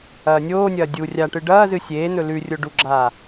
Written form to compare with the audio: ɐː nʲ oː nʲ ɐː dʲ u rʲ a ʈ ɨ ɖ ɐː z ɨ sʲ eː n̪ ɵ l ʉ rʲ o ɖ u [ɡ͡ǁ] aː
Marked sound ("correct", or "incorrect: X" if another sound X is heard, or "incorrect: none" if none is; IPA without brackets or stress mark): correct